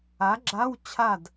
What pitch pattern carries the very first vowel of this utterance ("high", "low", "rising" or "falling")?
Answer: rising